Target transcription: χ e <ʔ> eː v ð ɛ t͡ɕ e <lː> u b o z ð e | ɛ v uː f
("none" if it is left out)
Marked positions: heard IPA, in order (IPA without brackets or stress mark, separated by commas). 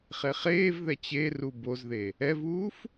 χ, r